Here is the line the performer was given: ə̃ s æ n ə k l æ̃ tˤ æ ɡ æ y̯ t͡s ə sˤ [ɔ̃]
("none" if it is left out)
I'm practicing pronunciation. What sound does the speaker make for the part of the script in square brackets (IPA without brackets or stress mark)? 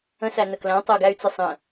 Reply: ə̃